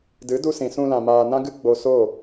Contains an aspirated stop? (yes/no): no